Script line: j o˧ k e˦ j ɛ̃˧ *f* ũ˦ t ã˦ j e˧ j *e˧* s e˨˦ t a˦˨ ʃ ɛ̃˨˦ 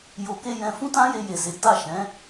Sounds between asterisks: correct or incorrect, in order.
correct, incorrect

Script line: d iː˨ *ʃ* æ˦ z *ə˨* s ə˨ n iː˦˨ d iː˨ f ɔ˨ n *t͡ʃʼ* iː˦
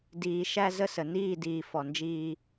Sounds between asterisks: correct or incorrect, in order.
correct, incorrect, incorrect

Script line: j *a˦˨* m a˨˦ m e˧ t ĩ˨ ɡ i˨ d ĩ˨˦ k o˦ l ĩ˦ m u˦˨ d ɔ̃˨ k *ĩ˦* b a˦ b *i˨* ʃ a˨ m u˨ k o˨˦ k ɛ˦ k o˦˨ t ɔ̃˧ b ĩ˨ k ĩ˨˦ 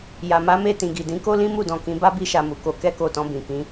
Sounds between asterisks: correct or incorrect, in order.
incorrect, incorrect, incorrect

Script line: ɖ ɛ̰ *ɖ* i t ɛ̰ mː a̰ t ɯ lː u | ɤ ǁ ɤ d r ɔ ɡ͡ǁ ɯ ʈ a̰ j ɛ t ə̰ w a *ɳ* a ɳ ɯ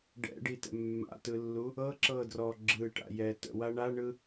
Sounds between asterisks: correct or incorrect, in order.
correct, correct

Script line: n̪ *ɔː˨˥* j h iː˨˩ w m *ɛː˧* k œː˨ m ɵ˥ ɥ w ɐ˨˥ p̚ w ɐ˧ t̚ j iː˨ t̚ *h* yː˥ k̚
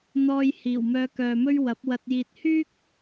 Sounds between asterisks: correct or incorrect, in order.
incorrect, incorrect, correct

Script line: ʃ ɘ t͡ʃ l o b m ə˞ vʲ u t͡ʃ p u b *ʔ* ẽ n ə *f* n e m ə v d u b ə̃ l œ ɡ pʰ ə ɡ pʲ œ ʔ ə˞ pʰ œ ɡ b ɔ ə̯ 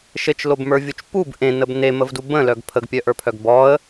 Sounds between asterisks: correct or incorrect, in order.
correct, incorrect

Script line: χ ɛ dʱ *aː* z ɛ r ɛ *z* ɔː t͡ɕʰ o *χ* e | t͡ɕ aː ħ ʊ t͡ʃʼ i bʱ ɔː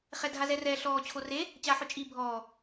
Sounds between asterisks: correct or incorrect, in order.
incorrect, incorrect, incorrect

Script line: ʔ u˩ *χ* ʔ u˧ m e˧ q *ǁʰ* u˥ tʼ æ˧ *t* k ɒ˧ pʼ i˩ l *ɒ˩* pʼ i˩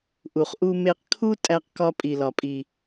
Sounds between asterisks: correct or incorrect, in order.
correct, incorrect, incorrect, correct

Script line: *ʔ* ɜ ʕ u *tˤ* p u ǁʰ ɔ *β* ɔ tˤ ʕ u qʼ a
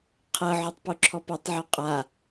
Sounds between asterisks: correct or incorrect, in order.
incorrect, correct, incorrect

